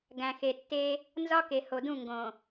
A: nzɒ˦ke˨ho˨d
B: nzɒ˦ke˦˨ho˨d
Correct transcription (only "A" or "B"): A